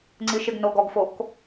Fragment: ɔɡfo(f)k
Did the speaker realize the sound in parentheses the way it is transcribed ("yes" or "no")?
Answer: no